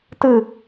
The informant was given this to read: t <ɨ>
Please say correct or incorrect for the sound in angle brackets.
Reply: correct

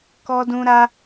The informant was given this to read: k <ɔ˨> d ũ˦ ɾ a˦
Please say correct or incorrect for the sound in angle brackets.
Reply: incorrect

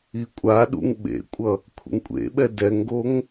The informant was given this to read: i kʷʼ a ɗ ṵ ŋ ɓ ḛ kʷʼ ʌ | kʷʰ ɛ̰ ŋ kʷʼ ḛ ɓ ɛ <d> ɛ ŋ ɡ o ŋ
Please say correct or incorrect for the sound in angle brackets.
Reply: correct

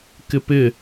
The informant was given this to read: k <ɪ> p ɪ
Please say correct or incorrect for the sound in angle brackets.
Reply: correct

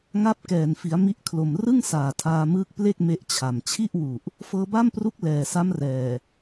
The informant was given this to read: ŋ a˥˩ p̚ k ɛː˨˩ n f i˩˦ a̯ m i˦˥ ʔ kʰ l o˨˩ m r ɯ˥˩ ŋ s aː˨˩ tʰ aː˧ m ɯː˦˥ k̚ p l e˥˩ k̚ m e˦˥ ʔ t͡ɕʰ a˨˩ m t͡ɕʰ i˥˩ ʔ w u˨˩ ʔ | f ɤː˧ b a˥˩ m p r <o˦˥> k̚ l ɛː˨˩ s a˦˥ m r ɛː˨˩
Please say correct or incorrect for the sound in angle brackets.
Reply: incorrect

